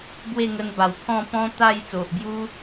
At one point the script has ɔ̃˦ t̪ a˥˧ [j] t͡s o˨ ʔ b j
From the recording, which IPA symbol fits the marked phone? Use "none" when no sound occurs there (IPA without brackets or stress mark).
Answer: j